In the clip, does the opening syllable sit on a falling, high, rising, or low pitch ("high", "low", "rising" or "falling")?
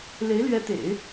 rising